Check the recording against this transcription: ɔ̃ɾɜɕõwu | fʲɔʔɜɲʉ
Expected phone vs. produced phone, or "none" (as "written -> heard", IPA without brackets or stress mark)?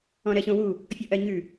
none